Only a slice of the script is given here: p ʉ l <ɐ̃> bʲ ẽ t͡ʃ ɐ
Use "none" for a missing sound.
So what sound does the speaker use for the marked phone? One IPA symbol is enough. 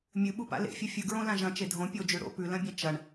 ɐ̃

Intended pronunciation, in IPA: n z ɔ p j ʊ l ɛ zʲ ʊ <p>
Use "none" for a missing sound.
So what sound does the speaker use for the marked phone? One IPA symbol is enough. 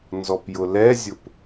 p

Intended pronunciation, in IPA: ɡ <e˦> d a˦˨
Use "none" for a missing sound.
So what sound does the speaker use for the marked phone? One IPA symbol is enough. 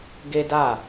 e˦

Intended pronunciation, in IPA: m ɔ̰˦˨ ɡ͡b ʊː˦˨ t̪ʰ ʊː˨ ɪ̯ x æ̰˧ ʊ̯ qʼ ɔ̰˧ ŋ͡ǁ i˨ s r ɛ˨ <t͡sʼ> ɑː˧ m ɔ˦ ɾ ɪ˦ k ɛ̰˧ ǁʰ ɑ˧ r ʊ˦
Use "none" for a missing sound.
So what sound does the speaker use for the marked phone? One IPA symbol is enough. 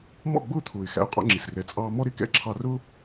t͡sʼ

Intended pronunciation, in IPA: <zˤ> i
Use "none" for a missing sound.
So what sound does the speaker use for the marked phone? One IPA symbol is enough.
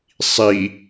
sˤ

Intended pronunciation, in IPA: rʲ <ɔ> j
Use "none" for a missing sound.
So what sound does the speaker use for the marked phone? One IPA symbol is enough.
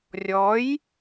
ɔ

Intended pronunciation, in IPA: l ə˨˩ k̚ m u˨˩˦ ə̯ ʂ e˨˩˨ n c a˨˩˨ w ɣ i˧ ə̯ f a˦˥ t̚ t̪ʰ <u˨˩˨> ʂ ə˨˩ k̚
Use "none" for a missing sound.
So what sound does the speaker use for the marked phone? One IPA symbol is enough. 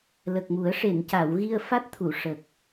u˨˩˨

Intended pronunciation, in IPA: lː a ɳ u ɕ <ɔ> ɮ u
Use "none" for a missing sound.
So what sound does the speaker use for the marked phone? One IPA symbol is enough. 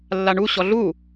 ɔ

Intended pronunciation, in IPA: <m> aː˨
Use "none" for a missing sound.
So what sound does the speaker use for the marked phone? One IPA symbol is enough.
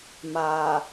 m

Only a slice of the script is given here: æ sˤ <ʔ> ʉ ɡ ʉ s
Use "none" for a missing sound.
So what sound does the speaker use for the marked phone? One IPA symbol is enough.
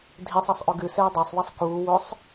ʔ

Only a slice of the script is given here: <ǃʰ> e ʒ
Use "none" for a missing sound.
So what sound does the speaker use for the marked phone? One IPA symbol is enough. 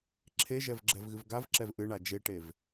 ǁʰ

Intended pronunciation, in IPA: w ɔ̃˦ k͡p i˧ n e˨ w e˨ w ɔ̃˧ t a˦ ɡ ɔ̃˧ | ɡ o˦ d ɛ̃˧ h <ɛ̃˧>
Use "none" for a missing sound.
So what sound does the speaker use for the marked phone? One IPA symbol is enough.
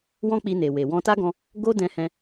ɛ̃˧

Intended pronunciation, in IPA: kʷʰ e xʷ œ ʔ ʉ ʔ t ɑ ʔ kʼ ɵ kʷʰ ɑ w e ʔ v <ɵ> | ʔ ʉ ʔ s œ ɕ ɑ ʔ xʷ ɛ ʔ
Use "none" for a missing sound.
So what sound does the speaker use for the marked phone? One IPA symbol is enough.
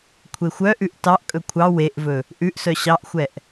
ɵ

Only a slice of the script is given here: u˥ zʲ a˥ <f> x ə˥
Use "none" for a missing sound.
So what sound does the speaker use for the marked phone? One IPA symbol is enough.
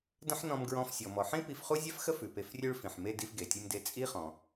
f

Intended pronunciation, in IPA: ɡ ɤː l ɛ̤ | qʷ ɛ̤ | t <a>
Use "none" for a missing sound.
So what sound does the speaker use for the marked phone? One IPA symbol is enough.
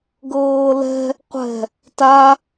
a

